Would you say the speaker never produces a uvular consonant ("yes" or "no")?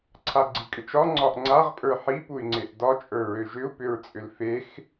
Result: no